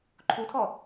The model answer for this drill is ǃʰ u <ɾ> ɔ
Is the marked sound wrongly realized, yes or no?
yes